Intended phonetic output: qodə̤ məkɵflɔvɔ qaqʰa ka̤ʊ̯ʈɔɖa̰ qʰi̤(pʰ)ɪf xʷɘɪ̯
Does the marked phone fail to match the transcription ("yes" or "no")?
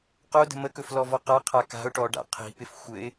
yes